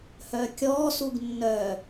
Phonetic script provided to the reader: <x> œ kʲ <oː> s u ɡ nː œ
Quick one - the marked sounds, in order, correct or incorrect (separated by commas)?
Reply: incorrect, incorrect